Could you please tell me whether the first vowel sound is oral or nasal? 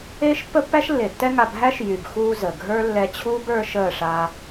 oral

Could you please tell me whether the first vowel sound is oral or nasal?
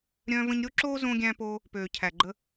nasal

